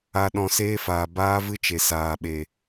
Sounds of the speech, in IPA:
a˧ ɗ ɔ̃˧ s eː˦ f aː˨ b aː˦ v ɨ˦ t͡ʃ e˨ s aː˨ ɓ e˨

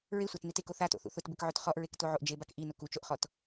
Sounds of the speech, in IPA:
ɹ e sʷ a t n i t e k o θ a t o̰ θ ṵ θ ʊ t b ɪ k ʕ o t χ ɔ ʔ ɹ e k t o ʕ o ʔ d͡ʒ e b a k ʔ i n ʊ k u t͡ʃ o ʔ χ ɔ t

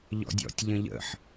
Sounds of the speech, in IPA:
ʎ ɔ̰ dʲ ɔ̰ tʲ ʎ ə̃ ʎ ə̰ ħ

